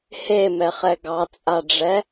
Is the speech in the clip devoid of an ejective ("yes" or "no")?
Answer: no